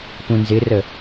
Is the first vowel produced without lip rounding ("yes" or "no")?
no